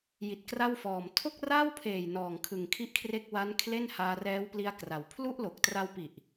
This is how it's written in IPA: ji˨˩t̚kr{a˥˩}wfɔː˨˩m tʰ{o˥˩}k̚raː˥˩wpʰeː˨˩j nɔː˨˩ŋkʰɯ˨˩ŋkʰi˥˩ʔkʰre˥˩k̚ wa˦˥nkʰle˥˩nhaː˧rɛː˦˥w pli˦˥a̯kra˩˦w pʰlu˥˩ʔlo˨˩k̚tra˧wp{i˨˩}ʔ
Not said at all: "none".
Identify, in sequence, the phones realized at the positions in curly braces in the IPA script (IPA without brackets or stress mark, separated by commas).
a˥˩, o˥˩, i˨˩